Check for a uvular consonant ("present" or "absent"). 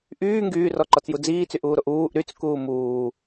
absent